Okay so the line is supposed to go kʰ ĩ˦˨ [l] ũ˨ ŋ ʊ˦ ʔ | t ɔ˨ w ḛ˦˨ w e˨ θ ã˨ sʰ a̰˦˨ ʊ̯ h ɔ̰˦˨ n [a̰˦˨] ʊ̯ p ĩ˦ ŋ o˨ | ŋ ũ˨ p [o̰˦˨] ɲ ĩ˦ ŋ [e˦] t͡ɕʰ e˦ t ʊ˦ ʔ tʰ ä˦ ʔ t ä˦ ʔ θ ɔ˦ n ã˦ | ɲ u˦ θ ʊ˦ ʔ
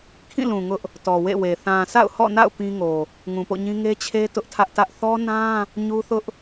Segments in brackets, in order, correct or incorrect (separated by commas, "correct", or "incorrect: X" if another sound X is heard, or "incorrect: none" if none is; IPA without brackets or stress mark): correct, correct, correct, correct